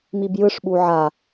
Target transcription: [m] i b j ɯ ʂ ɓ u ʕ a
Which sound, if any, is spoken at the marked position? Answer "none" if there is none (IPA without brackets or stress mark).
m